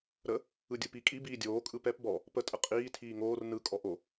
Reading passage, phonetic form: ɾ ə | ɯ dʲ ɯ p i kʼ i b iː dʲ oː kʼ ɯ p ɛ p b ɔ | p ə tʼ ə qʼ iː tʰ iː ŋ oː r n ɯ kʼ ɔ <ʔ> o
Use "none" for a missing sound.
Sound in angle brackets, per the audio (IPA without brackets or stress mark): ʔ